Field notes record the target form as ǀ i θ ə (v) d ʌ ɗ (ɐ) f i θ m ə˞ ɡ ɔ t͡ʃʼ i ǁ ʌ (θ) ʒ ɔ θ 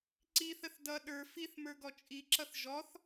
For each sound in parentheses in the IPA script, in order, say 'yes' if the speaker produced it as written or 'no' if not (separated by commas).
no, no, yes